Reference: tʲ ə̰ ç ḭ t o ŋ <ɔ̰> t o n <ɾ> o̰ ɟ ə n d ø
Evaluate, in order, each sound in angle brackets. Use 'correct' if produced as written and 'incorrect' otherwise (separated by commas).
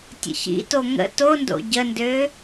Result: incorrect, incorrect